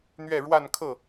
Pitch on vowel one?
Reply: falling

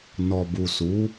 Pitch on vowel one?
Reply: low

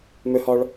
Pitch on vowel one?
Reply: high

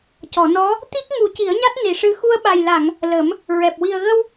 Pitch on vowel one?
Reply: low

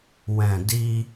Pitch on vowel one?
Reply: low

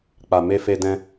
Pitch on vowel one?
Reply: low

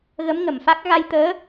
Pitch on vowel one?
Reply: rising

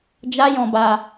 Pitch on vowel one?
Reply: high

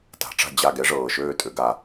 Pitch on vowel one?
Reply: rising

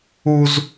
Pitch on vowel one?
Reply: high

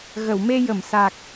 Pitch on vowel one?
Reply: low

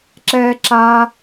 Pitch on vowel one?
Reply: high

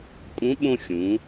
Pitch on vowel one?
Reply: rising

